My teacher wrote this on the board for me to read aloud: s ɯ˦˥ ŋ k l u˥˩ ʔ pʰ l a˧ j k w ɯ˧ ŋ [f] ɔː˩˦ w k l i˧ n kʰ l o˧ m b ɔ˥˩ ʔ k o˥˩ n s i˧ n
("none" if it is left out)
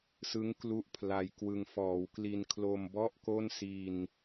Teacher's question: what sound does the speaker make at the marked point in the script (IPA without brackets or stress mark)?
f